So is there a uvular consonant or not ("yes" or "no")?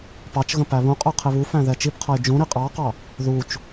yes